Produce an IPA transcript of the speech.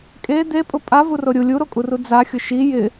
kʼ e d̪ e pʼ ʊ pʼ a v u r o ɾʲ u lʲ u ɾ o kʼ u r u d͡z a xʲ ʊ ʃ i j ɪ

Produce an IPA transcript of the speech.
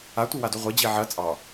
a tʷ i w a d u ʁʷ i d͡ʑ i ʕ ɐ t͡sʼ ɑ

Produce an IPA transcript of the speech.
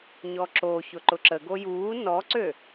ɲ ɔ ǁ o ç ʊ ǃ ʊ ǁ ə ɡ o j uː n ɔ ǀ ø

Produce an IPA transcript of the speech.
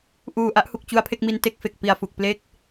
ʔ uː˨˩ ʔ a˦˥ ʔ h u˨˩ k̚ t͡ɕ u˦˥ a̯ pʰ e˥˩ k̚ m i˧ n t e˥˩ k̚ f e˨˩ k̚ p i˨˩ a̯ f u˨˩ k̚ p l e˥˩ k̚

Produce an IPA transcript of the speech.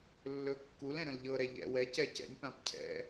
lː ɵ kː u l ɛ̃ ɾ ə̃ l ʎ ɤ ɾ ɛ ʎ ɛ̰ w ɛ c ɛ c ɛ̰ nʲ p ã p cʰ ɛ̰

